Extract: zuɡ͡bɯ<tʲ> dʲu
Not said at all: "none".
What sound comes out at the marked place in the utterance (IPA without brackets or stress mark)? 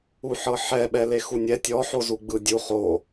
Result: none